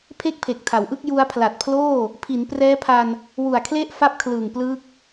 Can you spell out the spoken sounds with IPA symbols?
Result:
pʰe˥˩k̚pʰe˨˩k̚tʰa˩˦wʔɯ˥˩k̚ ju˧a̯ pʰla˨˩t̚pʰloː˥˩ | pʰi˩˦nprɛː˦˥pʰa˧n | wu˨˩a̯kʰle˥˩ʔ fa˥˩p̚ kʰlɯː˨˩ŋplɯː˦˥k̚

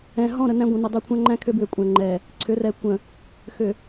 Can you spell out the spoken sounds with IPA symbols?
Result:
ɛ̃˨ ɦɔ̃˦˨ɾə˨ næ̃˦ɡʷə̃˨nə˨ dˤʉ˨kʷʰæ̃˦ŋ͡ǃæ̃˦ kʰʏ˦bwʏ˨kʷʼæ̃˨ŋ͡ǃɛ˨ | ǀʰʏ˨˦rɛ˨ kʷə̃˨ | xʏ˨

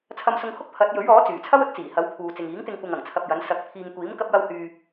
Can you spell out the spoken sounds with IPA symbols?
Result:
t͡sʰɐ˧msʊ˧ŋ hʊ˥k̚pʰɐ˨˥t̚ jɵ˨˥ɥɔː˨˥ t͡syː˨˩t͡sʰɐ˥wɵ˨˥t̚t͡siː˨˩ hɐ˨˥wpʰuː˨ t͡sɪ˨ŋiː˨˥ŋt̪ɪ˧ŋ kʷɐ˧ŋɐ˨˩ŋt͡sʰɐ˧p̚jɐ˨˥n sɐ˨˥k̚pʰiː˧ŋ kʷiː˨˥m kɐ˥p̚jɐ˥w hyː˧

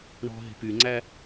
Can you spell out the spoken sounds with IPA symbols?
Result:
ɳɔ̤ ɦe̤pyŋ͡ǀæ

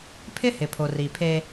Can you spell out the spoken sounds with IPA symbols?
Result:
pʰɪ˦hɪ˨pʰo˨ ri˨pʰe˦

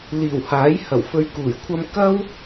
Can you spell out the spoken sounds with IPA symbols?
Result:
liː˨˩whaː˨˥j hɐ˨˩wfɵ˧ɥkuː˨˩jkʷʰɐ˥m kɐ˥w

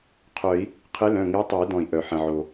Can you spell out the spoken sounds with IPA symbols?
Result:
qʰœ˨˩˦i̯ | qʰɪ˧˥lœ̃˩˧˩ ŋɪː˧˥tˤɛ˨˩˦i̯dɔ̃˩i̯ ʔœ˩ħə̃˩ʕo˩

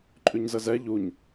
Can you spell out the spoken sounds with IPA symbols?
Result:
ǃʼʉɲzəzɛ ʎuɲ

